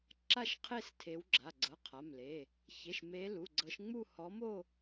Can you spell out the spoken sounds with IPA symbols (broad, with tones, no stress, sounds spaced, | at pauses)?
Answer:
ǁ a˥˧ ʃ qʰ e˥˧ s tʰ e˨˦ w ɡ͡ǁ a˩˧˩ ɡ͡ǀ ɤ˩˧˩ qʰ a˩˧˩ m l e˩˧˩ | ç e˩˧˩ ʃ m e˨˦ l u˩˧˩ ɡ͡ǀ ɤ˨˦ ʃ ŋ͡m u˥˧ h ɔ˨˦ m o˥˧